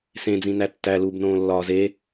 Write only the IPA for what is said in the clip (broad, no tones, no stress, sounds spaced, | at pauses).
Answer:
s ẽ d͡z ĩ n æ tː æ l uː b n õː lː ɒː z e